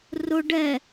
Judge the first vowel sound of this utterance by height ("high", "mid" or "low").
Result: high